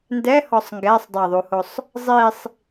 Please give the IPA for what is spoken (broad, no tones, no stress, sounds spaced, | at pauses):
n d ɛ h ɔ sˤ ŋ ɡ ɛ sˤ dˤ ɛ ðˤ u h o sˤ | zˤ i sˤ